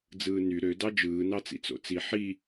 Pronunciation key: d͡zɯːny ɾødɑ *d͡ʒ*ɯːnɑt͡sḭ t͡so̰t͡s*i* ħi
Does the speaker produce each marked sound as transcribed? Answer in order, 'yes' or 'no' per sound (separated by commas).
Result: yes, yes